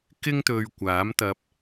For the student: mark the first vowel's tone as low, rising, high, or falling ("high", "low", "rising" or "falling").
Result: high